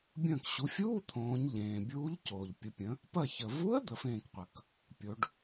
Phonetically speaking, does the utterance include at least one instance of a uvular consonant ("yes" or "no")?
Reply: yes